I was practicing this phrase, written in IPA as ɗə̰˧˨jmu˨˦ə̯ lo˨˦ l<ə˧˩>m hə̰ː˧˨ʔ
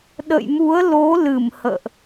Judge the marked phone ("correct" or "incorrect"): incorrect